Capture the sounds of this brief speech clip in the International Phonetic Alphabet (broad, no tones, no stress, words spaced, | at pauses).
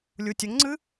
lʲutʲɵŋŋ͡ǀɨ